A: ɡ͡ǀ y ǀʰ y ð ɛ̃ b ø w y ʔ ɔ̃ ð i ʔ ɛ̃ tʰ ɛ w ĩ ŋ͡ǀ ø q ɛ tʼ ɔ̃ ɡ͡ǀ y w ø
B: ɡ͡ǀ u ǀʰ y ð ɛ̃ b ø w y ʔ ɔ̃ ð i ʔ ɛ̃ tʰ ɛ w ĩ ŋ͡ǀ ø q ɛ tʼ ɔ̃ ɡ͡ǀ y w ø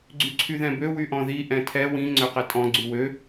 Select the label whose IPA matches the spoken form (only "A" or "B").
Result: A